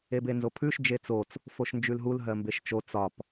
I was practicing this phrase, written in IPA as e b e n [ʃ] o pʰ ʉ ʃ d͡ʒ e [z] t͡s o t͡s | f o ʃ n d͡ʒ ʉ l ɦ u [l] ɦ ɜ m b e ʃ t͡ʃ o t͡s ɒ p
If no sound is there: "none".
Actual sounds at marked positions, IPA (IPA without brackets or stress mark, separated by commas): z, none, l